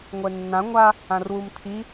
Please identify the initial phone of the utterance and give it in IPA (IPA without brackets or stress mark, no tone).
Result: ŋʷ